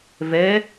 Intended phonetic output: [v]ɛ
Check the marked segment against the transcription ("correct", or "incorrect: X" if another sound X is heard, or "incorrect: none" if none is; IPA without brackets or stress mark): correct